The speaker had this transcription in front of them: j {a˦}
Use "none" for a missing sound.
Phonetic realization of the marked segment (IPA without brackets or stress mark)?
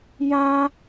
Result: ã˦